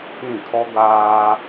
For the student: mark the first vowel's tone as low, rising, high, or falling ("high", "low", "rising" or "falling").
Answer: falling